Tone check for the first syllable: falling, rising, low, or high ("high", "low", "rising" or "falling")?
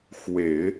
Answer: low